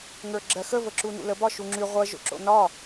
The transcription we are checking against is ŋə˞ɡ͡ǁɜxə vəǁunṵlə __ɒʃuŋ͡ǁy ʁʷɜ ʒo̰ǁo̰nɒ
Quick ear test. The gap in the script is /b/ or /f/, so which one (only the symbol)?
b